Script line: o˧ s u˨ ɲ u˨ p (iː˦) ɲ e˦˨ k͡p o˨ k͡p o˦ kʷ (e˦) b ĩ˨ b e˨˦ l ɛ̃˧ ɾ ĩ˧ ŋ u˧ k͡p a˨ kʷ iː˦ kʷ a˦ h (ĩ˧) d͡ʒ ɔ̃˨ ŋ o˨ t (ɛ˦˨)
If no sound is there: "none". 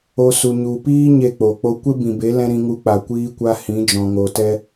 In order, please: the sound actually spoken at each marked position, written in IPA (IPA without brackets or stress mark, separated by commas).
iː˦, e˦, ĩ˨˦, ɛ˦